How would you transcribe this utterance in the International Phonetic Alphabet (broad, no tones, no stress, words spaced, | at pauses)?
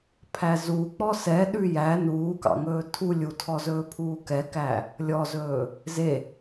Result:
pʰæzu k͡pɔsɛ ɗʉjæ nuːkɑ̰ŋɵː tʰulʲ utʰɔzɵː pʰuːkɛkæ | lʲɔzɵː | ze